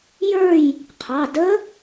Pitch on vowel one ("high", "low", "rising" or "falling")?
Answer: falling